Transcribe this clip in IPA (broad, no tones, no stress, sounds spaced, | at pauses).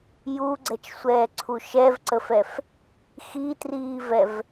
j u ɡ͡ǀ ɛ t͡ʃ sʷ ɛː ǀʰ u ʃ ɛ v ǀ ə f ɛ f | x i t r iː v ɛ v